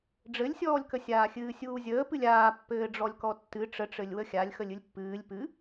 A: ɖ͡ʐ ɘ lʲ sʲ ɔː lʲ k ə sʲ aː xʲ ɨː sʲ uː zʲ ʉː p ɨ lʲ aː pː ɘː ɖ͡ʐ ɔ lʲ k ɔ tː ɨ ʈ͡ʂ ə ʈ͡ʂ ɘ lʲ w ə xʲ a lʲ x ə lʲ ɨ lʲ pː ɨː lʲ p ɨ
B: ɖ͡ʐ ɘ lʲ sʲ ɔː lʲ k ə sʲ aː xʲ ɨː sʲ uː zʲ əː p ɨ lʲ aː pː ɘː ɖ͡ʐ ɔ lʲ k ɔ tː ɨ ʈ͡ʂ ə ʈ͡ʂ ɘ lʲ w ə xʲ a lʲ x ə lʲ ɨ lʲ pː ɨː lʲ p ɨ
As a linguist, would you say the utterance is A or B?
B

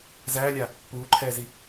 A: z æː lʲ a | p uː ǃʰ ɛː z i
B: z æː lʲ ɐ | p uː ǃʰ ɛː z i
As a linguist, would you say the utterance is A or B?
A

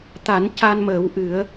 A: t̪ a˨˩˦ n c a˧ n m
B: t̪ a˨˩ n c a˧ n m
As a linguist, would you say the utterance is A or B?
A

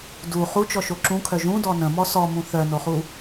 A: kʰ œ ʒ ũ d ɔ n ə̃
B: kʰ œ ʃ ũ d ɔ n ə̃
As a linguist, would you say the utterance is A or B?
A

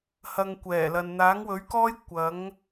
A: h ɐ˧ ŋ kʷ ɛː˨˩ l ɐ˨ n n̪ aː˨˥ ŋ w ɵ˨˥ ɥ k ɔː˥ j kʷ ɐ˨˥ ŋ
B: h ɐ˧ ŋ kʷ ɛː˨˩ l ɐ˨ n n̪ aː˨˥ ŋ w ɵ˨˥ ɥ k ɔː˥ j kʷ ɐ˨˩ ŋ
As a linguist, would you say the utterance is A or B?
A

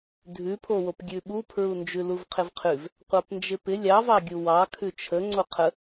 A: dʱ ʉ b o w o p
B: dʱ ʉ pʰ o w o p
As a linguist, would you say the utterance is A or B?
B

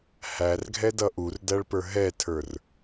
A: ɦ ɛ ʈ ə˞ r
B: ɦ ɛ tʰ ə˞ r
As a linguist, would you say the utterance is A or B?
B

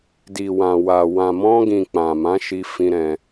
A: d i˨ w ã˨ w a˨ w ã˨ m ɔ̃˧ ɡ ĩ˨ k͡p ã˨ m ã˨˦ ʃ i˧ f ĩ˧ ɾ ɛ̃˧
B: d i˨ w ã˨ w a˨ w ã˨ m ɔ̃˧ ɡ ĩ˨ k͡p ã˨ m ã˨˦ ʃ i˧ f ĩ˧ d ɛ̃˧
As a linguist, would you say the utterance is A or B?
A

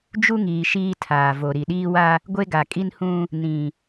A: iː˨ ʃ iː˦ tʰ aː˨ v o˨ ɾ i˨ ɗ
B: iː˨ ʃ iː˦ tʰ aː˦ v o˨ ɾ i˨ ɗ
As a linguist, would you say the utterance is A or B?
A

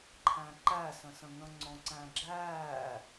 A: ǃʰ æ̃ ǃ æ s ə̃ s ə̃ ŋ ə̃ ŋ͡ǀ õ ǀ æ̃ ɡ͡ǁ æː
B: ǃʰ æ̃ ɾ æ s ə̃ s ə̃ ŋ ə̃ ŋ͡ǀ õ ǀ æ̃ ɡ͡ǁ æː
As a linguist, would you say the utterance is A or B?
A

